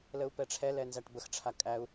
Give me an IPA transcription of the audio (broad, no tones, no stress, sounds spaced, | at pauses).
l ə u̯ p ɛ ʈ͡ʂʰ ɛ l ɛ n z æ ʈ b ə x ʈ͡ʂʰ a kʼ æ u̯